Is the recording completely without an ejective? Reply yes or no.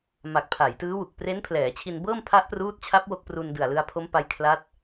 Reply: yes